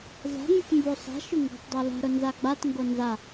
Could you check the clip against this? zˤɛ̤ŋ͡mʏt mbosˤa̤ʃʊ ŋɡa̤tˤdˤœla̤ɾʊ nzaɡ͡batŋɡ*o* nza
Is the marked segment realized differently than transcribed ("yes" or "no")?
no